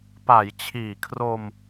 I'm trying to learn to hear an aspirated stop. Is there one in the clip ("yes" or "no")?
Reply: yes